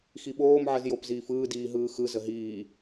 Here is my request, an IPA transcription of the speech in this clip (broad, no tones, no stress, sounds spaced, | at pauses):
x i ɓ oː m ʕ ə z j o p z iː f ɯː d iː ɦ ɯː x ɯ z ə ɦ iː